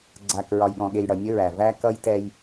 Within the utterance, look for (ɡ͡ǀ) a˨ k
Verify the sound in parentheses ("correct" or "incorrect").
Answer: correct